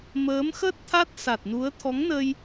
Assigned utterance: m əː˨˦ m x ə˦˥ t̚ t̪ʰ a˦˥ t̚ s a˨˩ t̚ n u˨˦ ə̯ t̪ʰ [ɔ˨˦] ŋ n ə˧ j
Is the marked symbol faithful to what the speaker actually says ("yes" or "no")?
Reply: yes